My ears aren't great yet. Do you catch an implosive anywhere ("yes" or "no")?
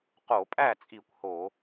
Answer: no